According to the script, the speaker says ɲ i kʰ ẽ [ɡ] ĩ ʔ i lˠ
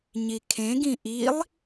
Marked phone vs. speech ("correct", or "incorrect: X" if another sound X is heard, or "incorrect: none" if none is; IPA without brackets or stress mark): correct